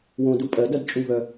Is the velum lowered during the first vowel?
yes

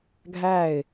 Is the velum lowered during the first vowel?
no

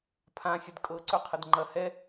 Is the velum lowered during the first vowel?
yes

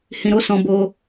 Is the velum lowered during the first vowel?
yes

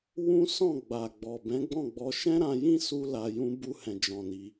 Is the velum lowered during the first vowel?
yes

